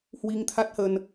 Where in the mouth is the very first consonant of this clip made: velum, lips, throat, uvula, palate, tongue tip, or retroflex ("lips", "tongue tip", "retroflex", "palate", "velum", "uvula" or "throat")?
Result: throat